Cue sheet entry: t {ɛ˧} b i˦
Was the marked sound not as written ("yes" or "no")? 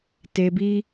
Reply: yes